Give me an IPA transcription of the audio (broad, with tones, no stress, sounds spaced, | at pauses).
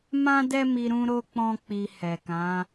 m ã˦ d ɛ˦ m i˧ ɾ ũ˦ ɾ o˦ k͡p ɔ̃˦ k͡p i˧ h ɛ˨ k ã˨˦